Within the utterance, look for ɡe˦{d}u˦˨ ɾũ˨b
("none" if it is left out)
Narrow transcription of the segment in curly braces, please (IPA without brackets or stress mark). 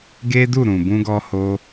d